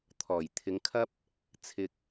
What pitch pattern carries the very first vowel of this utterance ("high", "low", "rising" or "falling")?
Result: low